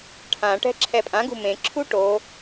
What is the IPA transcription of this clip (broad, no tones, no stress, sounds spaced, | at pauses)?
ʈʰ ã ʈ ɛ̤ ǁʰ ɛ pʼ ã ɡ ṳ m ẽ ǁʰ u ʈ o